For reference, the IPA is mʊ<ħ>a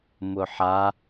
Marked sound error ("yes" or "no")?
no